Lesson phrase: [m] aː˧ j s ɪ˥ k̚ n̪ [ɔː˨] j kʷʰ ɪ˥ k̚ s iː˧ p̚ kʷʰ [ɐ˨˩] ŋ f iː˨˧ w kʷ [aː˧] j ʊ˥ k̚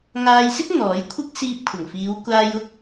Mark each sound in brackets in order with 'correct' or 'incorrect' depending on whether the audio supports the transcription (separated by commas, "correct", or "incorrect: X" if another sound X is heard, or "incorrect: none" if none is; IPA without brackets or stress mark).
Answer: incorrect: ŋ, incorrect: ɔː˨˥, correct, correct